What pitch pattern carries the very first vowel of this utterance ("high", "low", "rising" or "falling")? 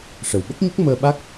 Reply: low